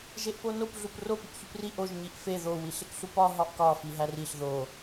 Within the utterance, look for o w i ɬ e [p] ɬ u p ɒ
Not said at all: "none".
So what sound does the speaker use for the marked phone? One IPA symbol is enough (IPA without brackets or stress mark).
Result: k